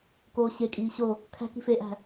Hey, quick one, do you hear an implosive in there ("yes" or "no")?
no